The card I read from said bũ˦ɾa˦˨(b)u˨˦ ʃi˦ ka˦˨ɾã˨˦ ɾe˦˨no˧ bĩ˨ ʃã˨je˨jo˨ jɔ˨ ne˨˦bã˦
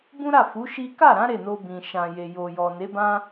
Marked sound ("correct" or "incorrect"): incorrect